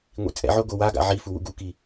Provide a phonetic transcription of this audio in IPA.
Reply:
ŋʷ ḭ t͡sʼ ɛ̰ ʕ o ɡ o w a ɡ a̰ ʕ i f u w ṵ ɡ u k i

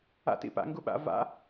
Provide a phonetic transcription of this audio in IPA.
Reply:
a̰ t ḭ p a̰ ŋ ɡ u ɓ a̰ v a̰

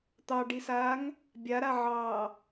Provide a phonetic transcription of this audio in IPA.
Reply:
t̪ ɑ ɖ i s aː ŋ | bʲ a ɾ a ʕ ɑː

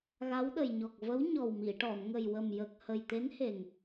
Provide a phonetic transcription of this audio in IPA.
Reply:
ɣ a˧˥ w ɗ ə˨˩ j ɲ ɔ˨˩ k̚ v ə˧˥ w ɲ ɔ˨˩ w m i˨˩˨ ʈ ɔ˨˩˨ n ŋ ə˨˩ j w ə˨˩ m j ə˨˩ k̚ h ə˨˩ j t̪ e˧˥ n h e˨˩ ŋ

